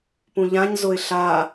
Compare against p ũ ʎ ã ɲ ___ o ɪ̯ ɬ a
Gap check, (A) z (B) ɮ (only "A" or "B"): A